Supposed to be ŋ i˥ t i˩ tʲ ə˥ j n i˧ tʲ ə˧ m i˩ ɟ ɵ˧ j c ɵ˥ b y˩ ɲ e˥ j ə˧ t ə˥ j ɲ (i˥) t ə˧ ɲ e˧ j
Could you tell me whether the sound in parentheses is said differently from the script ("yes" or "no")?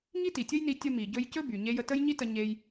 no